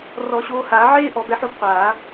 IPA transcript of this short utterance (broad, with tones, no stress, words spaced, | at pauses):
rɔ˨˩˦ɕoː˨˦haː˨˩˦ ʕeː˦ ʔɔ˨˩˦bɛ˨˦ħo˦b qʷaː˨˩˦